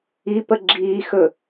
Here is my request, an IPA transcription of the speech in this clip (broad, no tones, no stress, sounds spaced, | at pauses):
i p ə ɡ͡ǁ iː x ɵ